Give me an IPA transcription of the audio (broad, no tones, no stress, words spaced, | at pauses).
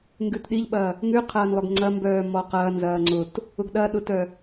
ŋɡʉtɗiʎɓɐ | ŋʉqʰɐːnlˠœɡ ŋ͡ǀɐmbœː mɔqɐːnzɐː ŋ͡ǀʊt | ʊɡɗɐɗʊtœ